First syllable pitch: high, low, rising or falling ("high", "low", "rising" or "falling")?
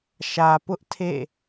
low